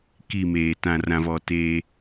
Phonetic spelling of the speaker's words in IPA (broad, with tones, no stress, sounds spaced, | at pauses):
k i˦˨ m eː˨ t ã˨ r ã˨ v ɔ˨ t eː˦